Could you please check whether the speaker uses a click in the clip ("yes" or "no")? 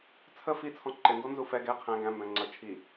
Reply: yes